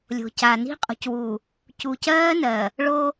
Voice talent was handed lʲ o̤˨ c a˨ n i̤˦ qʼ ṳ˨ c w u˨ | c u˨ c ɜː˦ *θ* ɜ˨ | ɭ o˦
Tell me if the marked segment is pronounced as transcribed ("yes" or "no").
no